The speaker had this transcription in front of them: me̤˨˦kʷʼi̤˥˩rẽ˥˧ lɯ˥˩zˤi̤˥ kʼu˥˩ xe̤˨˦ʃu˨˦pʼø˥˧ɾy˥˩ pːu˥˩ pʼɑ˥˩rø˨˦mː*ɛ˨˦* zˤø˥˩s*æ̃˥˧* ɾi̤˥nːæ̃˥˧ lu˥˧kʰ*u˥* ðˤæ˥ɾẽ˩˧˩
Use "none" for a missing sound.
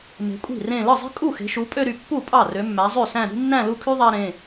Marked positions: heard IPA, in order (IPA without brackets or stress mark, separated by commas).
æ˨˦, æ̃˥˧, y˥